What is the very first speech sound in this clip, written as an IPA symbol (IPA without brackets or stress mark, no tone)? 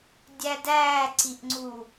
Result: dʲ